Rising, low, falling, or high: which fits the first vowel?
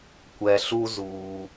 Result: low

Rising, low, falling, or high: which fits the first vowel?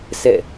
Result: falling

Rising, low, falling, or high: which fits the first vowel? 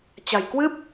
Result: low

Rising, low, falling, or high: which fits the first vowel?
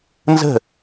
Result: falling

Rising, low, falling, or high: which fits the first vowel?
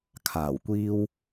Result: low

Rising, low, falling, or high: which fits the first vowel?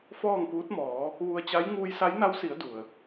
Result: falling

